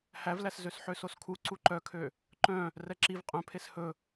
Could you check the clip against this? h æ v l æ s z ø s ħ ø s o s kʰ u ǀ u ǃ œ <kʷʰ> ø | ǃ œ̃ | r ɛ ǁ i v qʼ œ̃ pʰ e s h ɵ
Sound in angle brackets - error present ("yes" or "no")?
yes